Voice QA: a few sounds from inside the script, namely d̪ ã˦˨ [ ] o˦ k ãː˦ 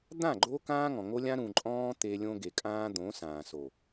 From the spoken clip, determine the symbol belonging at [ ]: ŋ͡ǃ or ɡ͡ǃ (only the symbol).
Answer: ɡ͡ǃ